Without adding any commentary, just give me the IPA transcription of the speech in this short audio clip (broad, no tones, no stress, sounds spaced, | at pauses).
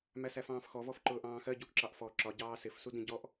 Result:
m æ s æ f ɑ̃ː f x ɔ v ɔ f ǃ ʊː ʔ ɑ̃ː x ɜ ɟ u ʔ ǁ ɑ ʔ f ɔ ǁ ɒ ɟ ɑː s ɪ f s u d ĩ ɟ ɔ ʔ